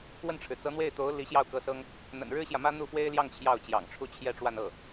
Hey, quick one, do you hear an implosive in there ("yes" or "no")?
no